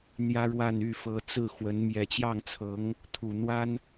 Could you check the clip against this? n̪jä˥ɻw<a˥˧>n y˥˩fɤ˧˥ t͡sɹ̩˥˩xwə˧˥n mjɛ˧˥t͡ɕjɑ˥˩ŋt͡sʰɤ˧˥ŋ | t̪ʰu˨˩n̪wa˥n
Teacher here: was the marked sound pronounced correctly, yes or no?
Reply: yes